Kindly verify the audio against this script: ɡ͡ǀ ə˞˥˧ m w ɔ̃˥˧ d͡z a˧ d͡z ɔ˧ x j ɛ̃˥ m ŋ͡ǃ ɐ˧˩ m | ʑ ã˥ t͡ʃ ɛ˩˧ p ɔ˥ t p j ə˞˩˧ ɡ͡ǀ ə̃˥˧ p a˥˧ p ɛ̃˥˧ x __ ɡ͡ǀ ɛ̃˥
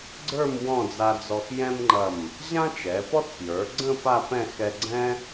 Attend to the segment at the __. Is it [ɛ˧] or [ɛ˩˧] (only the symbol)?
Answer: ɛ˧